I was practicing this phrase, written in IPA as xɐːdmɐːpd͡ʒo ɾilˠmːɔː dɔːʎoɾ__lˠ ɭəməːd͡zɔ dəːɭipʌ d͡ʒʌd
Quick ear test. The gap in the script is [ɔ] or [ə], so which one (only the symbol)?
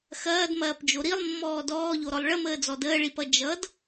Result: ɔ